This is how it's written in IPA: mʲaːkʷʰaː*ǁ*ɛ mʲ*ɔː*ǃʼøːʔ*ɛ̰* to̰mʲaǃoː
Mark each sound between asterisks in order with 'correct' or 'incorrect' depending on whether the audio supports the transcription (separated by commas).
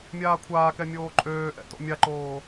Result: incorrect, incorrect, correct